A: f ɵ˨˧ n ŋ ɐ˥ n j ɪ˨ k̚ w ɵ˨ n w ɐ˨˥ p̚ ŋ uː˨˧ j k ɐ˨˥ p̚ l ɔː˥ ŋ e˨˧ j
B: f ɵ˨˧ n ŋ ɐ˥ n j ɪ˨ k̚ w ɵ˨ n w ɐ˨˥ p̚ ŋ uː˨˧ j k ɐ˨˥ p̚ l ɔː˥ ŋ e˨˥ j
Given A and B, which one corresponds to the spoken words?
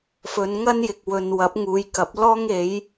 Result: B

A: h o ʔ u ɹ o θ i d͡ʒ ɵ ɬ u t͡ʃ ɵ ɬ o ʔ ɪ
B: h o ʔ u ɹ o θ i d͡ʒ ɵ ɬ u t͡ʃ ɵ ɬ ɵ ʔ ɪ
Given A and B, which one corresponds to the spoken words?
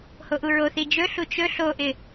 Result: A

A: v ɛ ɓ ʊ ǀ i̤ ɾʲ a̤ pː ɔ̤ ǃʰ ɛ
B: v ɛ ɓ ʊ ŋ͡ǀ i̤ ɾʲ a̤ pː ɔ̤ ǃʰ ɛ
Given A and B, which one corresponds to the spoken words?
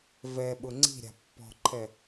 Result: B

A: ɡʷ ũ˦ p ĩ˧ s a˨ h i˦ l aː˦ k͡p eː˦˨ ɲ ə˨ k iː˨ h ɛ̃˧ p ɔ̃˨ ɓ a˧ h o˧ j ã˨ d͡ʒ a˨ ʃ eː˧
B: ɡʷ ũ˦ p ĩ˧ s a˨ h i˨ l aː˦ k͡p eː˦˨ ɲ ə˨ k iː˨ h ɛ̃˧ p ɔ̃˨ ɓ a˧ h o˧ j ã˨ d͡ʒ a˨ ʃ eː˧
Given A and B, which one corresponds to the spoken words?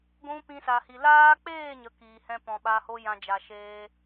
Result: B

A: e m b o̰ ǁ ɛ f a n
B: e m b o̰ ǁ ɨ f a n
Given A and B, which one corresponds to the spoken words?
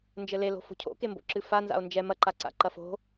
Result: B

